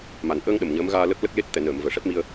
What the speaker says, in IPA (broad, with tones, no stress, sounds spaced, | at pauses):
m a˨˩ n ʔ əː˧ ŋ ɗ ə˨˩ m ɲ əː˧˥ m ɣ aː˧ l ə˦˥ k̚ l ə˦˥ k̚ l e˦˥ t̚ t̪ ɛ˨˩˨ n əː˨˩˨ m v əː˨˩ ʂ ɛ˦˥ p̚ m i˧ ə̯